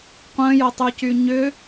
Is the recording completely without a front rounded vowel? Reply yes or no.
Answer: no